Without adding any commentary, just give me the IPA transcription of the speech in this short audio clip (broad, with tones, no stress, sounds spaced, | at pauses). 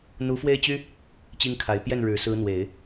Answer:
n̪ u˧˥ f w e˥˩ ɪ̯ t͡ɕ y˥ | t͡ɕ i˥ ŋ kʰ a˧˥ ɪ̯ p j ɛ˥˩ n ɻ ɻ̩˨˩ s ɹ̩˧˥ n̪ w e˨˩˦ ɪ̯